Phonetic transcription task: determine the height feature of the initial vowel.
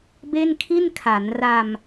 mid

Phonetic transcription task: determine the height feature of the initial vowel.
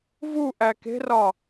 high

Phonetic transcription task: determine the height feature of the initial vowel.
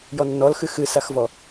mid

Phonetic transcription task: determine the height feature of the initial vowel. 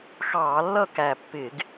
low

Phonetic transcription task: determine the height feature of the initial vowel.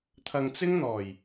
low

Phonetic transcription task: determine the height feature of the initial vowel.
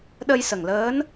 mid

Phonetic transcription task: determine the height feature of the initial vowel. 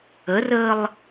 mid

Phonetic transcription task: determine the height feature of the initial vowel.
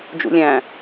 high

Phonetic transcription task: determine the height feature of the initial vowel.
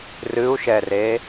high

